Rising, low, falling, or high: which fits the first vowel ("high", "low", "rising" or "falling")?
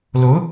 rising